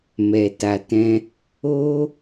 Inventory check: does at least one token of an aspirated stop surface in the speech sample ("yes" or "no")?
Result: no